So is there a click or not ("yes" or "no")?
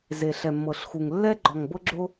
yes